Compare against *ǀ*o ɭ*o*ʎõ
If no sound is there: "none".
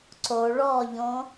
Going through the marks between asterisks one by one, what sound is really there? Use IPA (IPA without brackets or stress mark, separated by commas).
ǀ, ɔ